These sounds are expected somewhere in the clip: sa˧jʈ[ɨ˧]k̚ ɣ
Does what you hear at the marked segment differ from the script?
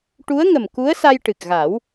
yes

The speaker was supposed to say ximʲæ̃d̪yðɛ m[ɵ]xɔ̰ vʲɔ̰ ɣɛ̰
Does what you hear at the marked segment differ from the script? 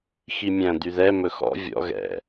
no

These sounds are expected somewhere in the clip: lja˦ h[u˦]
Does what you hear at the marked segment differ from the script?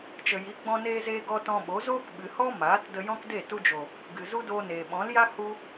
no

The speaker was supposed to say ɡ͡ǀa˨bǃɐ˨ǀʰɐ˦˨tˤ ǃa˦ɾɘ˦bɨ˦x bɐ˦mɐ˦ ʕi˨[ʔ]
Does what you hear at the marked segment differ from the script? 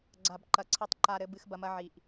no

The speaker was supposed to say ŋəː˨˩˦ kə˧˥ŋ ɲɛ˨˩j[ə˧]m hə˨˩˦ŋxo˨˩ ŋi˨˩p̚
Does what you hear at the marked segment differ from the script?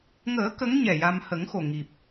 yes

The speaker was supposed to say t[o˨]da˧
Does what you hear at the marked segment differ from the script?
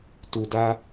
yes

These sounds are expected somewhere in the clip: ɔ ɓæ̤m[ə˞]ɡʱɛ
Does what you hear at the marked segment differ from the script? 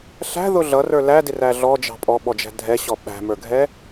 no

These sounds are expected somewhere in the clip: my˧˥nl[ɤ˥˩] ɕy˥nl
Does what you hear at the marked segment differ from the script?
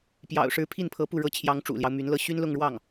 no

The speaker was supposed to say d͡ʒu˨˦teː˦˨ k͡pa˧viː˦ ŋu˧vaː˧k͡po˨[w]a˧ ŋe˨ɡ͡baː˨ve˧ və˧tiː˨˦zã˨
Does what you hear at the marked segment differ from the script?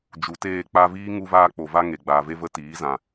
yes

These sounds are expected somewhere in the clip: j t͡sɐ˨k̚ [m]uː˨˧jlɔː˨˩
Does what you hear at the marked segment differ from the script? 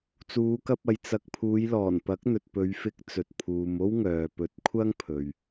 yes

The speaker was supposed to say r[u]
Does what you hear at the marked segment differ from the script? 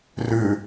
yes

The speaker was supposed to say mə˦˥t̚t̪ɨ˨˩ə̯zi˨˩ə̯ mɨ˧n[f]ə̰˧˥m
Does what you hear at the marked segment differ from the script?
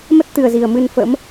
no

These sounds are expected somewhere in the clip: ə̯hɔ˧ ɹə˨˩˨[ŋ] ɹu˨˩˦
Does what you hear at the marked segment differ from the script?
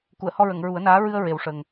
no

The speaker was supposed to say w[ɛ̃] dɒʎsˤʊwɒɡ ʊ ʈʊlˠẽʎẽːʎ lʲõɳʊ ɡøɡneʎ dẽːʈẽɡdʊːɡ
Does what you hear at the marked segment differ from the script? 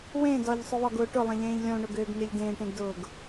yes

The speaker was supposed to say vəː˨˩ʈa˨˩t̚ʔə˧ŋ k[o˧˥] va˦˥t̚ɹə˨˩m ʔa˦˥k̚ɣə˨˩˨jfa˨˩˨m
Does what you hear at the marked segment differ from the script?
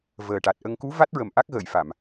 yes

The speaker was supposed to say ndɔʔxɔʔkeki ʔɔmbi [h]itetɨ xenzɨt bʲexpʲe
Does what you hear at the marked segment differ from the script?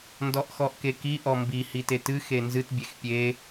no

